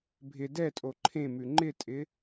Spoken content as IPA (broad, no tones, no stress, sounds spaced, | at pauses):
bʱ ɪ d ɛ tʼ o ǃʰ ẽ m ʉ ŋ͡ǃ ɪ tʼ ɪ